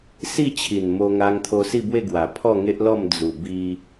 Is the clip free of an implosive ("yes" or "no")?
yes